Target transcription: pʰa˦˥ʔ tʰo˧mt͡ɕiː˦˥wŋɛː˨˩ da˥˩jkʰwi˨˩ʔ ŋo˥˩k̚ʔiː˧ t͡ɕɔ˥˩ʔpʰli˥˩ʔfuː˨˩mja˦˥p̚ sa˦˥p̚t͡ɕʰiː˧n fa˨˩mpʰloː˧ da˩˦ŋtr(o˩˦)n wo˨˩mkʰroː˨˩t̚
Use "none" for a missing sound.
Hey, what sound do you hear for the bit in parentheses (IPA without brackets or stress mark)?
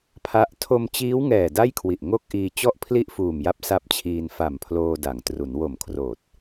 u˩˦